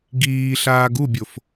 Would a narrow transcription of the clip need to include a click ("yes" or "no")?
no